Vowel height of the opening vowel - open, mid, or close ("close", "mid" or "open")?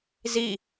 close